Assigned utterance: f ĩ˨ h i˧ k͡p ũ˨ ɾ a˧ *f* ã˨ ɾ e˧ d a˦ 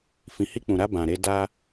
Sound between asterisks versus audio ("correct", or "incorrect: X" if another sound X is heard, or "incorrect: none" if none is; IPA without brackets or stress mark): incorrect: b